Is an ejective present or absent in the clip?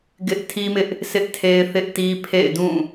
absent